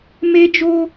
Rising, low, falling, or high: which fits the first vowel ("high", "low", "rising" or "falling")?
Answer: high